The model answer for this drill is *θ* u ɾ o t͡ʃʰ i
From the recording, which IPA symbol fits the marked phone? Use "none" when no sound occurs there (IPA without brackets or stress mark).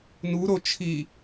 n